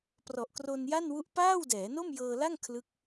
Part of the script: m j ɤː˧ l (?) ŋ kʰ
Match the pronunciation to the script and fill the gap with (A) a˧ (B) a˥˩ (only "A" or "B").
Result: B